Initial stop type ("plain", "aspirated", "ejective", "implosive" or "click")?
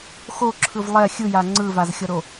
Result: click